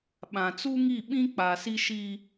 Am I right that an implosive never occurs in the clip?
no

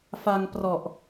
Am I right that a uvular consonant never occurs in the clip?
yes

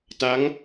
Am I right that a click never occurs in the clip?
yes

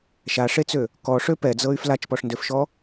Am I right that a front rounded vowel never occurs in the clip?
no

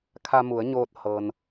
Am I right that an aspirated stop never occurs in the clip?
no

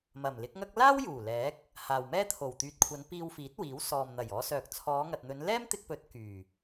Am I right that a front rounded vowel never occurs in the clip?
no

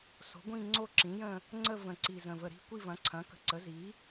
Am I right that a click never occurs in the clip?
no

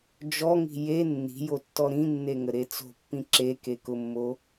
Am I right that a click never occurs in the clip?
no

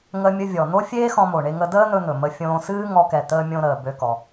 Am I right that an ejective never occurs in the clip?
yes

